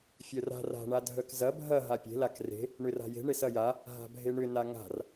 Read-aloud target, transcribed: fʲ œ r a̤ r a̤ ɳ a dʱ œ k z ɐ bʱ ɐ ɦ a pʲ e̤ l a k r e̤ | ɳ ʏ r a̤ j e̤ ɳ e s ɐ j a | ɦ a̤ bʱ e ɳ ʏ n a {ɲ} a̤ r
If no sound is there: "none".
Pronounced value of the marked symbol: ŋ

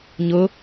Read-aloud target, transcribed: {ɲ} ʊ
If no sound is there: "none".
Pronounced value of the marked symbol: ɲ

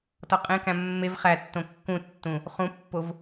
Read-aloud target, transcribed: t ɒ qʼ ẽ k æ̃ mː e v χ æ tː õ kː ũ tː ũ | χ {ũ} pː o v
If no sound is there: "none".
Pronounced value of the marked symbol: ũ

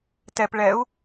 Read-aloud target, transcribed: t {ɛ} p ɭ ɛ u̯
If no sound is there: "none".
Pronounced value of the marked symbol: ɛ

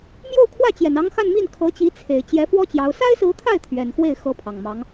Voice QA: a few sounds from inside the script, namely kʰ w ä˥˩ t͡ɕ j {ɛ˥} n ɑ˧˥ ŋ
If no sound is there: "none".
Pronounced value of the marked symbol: ɛ˨˩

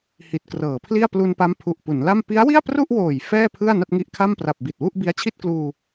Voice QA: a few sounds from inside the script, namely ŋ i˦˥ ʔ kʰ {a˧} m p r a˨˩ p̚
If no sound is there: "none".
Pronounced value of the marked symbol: a˥˩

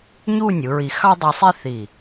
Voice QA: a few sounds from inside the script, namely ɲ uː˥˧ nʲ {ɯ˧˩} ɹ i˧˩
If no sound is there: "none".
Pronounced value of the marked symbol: ɯ˩˧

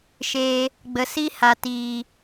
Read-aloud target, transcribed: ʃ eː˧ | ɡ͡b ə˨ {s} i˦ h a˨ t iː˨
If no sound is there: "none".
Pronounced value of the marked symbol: s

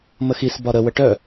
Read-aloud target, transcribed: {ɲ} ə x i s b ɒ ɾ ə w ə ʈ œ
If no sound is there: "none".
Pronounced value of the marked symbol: m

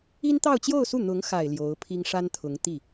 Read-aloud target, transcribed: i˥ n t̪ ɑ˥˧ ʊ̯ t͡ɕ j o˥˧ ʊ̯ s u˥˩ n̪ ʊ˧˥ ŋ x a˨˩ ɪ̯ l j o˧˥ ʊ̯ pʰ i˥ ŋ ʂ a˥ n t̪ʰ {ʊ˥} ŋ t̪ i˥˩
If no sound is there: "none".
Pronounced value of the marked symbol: ʊ˧˥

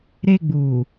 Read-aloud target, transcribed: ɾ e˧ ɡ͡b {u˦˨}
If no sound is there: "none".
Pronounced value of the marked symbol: u˨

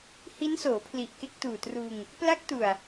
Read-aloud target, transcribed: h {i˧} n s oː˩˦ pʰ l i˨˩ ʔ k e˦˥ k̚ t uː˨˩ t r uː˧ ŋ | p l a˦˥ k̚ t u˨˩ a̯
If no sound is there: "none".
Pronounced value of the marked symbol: i˦˥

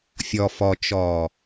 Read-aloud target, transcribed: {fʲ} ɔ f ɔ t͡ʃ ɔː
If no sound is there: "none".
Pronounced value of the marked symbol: fʲ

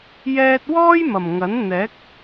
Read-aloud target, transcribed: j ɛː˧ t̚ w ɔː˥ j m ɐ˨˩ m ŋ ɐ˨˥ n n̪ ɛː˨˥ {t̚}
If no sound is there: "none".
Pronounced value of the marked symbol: k̚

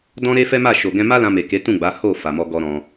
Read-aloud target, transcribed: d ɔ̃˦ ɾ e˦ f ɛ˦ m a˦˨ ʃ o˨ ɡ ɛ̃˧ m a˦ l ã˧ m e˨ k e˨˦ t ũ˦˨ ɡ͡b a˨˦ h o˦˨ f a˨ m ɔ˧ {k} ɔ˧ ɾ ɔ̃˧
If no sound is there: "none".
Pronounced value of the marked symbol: ɡ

